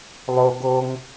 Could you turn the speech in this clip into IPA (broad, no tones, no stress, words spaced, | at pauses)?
lˠo ɡoŋ